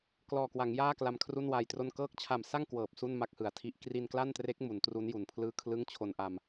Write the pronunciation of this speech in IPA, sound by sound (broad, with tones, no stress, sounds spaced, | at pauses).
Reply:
k l ɔː˨˩ k w a˩˦ ŋ j aː˥˩ k l a˧ m kʰ r u˥˩ n w aː˧ j t r o˥˩ n k ɤː˦˥ k̚ t͡ɕʰ a˨˩ m s a˥˩ ŋ k w ɤː˨˩ p̚ s u˥˩ n m a˦˥ k̚ h ɯ˩˦ a̯ tʰ i˦˥ ʔ k r i˧ n k l a˥˩ n t r e˦˥ k̚ m u˩˦ n t r u˦˥ n j u˨˩ n pʰ l ɯː˥˩ kʰ l ɯ˥˩ ŋ t͡ɕʰ o˧ n ʔ a˧ m